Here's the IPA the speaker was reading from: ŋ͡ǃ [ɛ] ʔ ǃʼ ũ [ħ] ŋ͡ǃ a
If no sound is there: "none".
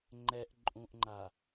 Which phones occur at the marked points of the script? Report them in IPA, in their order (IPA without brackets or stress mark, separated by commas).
ɛ, ʔ